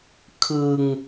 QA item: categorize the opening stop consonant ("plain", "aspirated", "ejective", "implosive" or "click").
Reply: aspirated